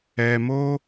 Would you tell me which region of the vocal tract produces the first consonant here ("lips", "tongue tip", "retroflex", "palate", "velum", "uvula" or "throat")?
lips